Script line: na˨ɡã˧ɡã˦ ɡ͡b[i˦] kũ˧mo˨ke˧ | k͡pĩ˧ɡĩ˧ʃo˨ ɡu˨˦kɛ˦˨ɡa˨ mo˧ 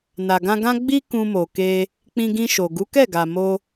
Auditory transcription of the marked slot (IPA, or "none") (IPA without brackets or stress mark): i˦